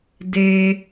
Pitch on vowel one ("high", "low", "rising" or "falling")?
low